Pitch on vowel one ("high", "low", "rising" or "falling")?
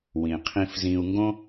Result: low